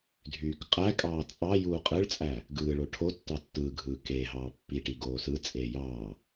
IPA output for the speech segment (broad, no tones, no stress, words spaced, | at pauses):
dʱyːkqʼækʼɑː t͡sʼɑ juːqʼɯɭt͡sʼæ | ɡɯːɭo ʈʰo tːɑtːɯːɡʱɯː keːɦɑː pːiʈi ɡoːsɯt͡sʼeː jɑː